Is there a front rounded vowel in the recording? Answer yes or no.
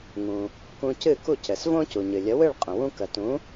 no